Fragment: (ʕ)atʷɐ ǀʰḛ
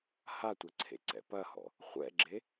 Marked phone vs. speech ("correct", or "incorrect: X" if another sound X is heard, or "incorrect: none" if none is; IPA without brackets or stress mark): incorrect: h